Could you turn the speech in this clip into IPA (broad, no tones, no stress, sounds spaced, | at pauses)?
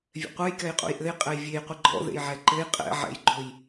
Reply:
vʲ ɛ̰ qʷ ɛ j k ɛ j qʼ ṵ j ʔ ɘ j qʼ ɛ j vʲ e j qʷ i ɡ͡ǃ ɔ̰ ð ḛ j ʕ ɛ ǃ ɘ j qʼ ɛ̰ ʕ ɛ̰ j ɡ͡ǃ o j